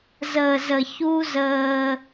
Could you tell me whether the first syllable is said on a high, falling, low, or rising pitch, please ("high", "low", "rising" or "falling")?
low